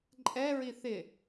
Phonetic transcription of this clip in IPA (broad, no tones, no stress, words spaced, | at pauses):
ǃʼɛɹi θɪ